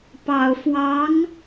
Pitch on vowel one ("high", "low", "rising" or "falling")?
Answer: low